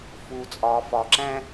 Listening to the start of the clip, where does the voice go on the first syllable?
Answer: low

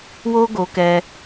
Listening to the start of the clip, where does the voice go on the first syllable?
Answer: high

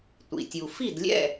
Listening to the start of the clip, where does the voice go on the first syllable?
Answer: low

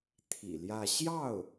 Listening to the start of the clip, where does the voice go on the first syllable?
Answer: low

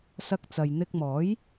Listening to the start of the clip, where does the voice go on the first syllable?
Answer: high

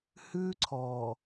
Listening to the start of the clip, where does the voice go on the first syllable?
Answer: high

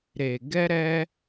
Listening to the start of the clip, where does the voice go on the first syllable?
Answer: low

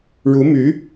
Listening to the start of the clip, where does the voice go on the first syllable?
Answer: rising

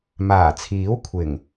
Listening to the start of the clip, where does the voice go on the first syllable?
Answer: low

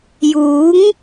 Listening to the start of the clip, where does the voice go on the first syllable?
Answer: rising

